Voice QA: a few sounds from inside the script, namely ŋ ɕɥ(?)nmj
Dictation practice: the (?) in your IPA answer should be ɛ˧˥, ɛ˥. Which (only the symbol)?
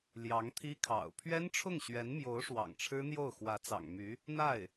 ɛ˧˥